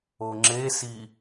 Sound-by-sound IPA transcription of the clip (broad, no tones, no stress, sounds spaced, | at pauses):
o ŋ͡ǁ e s i